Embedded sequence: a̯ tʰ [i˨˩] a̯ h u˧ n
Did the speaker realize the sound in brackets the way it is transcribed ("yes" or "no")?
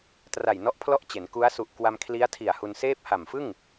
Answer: yes